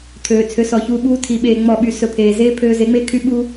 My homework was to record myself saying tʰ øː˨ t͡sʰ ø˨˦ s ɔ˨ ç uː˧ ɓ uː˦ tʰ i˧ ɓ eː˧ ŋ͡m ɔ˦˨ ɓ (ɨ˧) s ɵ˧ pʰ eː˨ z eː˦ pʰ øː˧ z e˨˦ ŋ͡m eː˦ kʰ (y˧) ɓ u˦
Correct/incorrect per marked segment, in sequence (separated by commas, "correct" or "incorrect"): incorrect, incorrect